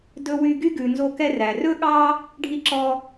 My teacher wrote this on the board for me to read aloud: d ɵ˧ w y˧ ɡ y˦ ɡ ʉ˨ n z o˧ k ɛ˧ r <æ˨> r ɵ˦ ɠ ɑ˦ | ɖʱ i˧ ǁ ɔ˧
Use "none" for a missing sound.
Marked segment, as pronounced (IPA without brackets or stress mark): æ˨